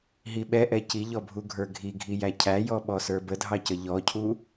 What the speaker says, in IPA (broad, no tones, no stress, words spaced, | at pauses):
ɦiɓɛʔɛ ciʎɔbʱuɡʱə˞ ɡʱiɡʱijæ cʰæjɔɓɔsə˞ bədʱɑcə ʎɔcʰu